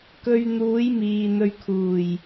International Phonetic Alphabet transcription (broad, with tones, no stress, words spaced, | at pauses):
kɵ˧ɥn̪uː˨˥jmiː˨ n̪ɵ˨ɥkʰuː˨˩j